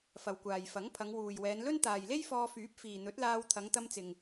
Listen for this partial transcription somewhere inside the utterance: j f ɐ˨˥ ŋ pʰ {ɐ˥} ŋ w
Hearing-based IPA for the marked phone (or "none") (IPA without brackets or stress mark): ɐ˨˧